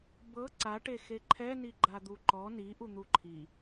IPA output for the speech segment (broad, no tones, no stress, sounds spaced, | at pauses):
b ɤ ǀ a ʈ e x e ǃʰ ɛ n i ɡ͡ǃ a d̪ u ǃ ɔ n i ʔ u n̪ u ǃʰ i